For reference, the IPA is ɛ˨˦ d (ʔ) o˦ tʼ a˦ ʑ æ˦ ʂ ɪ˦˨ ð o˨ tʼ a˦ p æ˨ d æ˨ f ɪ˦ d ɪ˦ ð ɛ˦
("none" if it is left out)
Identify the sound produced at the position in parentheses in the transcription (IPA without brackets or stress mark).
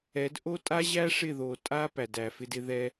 ʔ